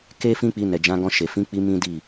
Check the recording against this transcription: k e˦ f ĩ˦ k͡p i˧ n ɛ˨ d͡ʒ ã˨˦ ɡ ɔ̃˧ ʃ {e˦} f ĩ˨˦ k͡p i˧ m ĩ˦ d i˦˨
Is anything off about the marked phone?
yes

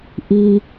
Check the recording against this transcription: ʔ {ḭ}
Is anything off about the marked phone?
yes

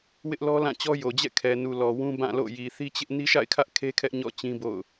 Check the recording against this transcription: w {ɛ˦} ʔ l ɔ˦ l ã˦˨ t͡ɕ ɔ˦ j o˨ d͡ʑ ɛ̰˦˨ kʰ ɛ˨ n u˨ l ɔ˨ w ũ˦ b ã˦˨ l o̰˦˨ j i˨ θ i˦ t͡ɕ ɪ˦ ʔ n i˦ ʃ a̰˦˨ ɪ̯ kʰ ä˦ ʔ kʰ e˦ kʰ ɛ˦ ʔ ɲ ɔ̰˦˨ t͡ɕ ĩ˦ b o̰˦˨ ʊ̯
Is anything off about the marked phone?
yes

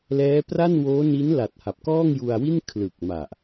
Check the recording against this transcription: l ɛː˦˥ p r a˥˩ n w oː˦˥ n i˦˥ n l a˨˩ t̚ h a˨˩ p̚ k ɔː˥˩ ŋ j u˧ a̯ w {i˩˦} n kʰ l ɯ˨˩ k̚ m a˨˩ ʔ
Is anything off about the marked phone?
yes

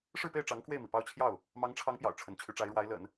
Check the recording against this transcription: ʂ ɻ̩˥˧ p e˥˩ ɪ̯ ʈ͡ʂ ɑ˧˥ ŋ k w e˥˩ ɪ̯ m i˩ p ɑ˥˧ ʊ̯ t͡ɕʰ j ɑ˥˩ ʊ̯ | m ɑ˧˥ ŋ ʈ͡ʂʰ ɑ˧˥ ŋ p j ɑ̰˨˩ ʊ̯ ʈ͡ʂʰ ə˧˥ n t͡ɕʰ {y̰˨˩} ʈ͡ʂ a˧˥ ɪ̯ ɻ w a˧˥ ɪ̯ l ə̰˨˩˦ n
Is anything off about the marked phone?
yes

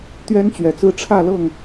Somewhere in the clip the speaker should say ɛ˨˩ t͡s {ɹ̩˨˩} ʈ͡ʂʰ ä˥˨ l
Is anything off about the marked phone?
yes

